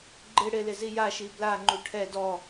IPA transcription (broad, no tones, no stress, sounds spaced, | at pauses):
ɡ͡ǃ ɪ ɽ ɪ l ɪ z i j a ʃ i b l a ŋ͡ǃ u ʈʰ ɛ d ɔ